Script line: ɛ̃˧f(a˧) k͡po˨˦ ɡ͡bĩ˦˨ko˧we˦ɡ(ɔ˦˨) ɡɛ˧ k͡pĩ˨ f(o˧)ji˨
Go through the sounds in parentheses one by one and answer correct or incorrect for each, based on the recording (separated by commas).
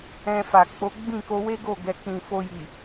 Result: incorrect, incorrect, correct